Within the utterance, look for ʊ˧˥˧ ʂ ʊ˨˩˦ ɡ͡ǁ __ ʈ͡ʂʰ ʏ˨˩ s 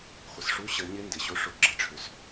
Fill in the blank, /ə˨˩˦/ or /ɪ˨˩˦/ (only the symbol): ə˨˩˦